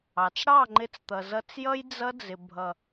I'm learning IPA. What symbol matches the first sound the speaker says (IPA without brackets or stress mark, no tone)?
ɑ